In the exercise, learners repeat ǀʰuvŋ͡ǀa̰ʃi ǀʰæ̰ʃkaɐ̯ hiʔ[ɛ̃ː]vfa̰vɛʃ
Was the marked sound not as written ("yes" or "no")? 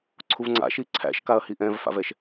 yes